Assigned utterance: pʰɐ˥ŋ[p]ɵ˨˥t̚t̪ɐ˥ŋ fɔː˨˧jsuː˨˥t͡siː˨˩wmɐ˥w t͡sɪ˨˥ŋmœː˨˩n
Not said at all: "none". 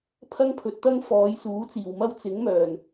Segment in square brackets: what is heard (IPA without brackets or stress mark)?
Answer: pʰ